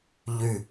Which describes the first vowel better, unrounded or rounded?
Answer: rounded